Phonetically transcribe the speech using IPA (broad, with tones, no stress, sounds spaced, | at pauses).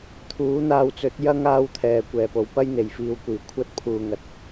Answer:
t̪ʰ uː˨˥ n̪ aː˧ w t͡s ɵ˨˥ t̚ j ɐ˥ ŋ aː˧ w t̪ʰ ɛː˨˩ kʷ ɛː˨˩ p o˨˩ w p ɐ˥ j n̪ e˨˩ j f iː˨ w kʷ iː˨˩ kʷʰ ɐ˥ t̚ pʰ uː˨ ŋ ɐ˨ t̚